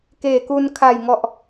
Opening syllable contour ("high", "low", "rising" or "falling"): low